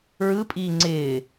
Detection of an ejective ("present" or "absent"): present